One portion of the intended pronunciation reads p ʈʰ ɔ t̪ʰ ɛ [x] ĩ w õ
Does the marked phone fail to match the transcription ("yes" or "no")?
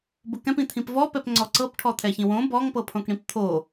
yes